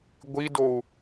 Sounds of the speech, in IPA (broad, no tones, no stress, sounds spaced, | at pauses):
ɡʷ i d o u̯